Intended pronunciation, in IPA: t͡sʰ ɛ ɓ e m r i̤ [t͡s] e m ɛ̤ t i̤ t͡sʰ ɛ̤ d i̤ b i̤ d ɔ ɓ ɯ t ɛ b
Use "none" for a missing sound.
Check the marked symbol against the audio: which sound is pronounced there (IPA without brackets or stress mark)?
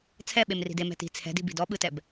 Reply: d